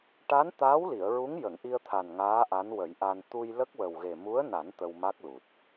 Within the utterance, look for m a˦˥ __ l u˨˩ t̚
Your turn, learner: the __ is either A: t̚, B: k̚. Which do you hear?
B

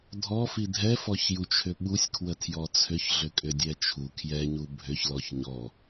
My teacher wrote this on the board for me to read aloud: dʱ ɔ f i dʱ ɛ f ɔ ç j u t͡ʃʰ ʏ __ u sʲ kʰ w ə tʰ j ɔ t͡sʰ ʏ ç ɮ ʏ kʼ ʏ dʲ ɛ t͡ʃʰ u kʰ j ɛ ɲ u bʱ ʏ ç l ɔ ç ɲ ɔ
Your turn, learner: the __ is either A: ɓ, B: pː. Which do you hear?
A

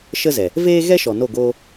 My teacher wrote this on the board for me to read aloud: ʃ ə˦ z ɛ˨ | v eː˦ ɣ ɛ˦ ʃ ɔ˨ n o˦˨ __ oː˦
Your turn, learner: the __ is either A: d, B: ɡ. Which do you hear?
B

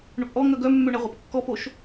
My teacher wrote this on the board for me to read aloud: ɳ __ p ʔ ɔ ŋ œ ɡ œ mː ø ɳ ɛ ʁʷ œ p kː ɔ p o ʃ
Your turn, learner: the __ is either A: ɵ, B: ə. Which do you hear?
A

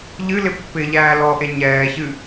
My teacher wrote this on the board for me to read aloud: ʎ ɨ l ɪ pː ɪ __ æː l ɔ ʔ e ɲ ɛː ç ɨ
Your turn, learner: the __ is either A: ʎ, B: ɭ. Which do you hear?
A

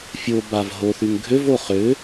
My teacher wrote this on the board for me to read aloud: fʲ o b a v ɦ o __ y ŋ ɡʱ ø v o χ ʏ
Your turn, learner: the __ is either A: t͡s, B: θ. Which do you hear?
B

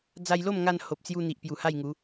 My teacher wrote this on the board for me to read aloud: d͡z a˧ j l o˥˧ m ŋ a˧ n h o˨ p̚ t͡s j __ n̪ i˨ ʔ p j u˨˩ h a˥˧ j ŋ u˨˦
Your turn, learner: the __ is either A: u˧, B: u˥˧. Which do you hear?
A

